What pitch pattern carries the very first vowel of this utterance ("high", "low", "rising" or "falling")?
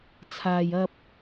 low